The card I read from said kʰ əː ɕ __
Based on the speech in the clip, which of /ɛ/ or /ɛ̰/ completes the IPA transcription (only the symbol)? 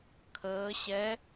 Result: ɛ